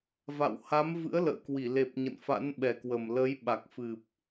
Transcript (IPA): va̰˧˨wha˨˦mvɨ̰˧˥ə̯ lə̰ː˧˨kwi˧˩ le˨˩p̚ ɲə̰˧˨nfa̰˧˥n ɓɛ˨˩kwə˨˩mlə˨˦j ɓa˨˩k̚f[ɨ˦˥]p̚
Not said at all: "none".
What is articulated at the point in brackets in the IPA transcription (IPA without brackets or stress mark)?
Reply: ɨ˨˩